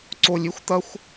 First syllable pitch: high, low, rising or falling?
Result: low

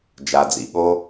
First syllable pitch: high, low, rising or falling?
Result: low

